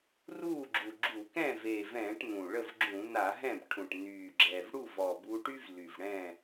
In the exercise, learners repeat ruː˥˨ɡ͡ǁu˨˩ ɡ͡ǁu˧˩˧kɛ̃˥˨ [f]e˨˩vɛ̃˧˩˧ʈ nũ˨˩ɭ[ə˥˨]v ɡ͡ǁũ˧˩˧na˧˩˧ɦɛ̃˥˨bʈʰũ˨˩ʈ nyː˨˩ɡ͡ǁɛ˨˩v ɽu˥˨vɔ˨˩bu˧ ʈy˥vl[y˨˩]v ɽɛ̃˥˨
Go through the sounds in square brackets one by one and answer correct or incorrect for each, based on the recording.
incorrect: v, correct, correct

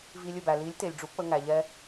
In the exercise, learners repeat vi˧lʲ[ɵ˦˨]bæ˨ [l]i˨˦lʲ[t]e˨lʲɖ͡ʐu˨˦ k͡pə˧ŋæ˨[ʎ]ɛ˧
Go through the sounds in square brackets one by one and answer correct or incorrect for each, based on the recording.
correct, correct, correct, correct

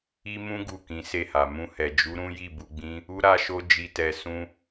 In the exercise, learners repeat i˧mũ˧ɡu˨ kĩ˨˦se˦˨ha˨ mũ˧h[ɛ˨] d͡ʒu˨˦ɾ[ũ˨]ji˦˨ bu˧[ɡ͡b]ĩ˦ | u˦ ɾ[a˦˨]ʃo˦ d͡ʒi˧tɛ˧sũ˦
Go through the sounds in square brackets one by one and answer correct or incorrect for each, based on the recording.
correct, incorrect: ũ˦, correct, incorrect: a˦

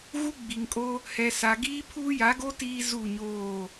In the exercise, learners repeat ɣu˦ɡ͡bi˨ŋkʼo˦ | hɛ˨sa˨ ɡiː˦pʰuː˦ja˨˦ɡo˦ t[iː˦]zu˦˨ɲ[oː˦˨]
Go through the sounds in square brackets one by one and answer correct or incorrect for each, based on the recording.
correct, correct

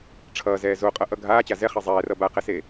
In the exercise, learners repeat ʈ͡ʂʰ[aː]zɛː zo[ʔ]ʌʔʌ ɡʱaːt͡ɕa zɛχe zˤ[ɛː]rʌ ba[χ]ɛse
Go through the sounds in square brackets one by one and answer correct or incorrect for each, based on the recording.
incorrect: ʌː, incorrect: qʼ, correct, incorrect: q

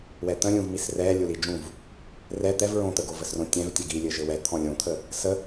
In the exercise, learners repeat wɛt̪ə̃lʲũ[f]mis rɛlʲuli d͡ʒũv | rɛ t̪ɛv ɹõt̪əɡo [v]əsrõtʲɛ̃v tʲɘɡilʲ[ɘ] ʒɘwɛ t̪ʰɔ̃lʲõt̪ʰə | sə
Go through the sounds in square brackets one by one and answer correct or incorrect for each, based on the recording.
incorrect: v, correct, correct

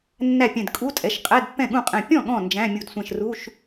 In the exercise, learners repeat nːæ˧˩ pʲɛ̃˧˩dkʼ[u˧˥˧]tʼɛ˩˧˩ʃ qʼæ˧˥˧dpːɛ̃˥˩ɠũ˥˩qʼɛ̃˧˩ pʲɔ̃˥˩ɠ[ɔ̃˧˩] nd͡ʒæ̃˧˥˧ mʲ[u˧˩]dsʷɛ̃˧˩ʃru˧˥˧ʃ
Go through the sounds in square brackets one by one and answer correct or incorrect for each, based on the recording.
correct, correct, correct

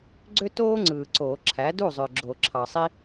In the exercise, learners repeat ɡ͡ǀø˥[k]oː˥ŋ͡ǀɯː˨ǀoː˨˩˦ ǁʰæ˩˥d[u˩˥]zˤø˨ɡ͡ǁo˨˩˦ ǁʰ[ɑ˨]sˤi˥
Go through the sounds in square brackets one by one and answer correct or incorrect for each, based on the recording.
incorrect: t, incorrect: u˥˩, correct

